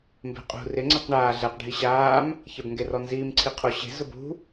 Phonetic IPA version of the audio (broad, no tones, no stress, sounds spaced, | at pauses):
m b e̤ qʼ ṳ r ɪ ŋ͡ǀ ɛ q ɳ aː ɮ ɛ q ɖʱ i ɕ aː m | ç ɛ b ŋ ɡ e r ɔ n z iː m ǀʰ i qʰ o ɕ e̤ z ʊ b ṳ